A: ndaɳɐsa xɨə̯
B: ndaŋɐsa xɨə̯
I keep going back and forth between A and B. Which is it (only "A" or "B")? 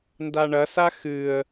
A